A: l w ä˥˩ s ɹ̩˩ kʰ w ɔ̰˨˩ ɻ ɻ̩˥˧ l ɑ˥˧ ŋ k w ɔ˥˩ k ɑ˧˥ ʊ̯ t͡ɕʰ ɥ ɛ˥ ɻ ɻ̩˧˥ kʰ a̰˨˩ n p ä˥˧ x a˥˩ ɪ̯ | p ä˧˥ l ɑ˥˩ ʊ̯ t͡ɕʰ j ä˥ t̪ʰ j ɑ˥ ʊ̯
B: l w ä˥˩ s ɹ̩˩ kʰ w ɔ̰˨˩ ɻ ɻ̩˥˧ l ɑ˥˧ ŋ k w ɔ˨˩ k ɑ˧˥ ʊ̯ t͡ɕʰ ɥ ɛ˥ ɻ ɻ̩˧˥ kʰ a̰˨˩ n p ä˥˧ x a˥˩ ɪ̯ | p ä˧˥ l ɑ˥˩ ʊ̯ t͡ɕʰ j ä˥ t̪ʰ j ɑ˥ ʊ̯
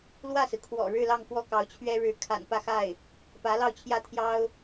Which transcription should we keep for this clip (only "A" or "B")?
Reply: A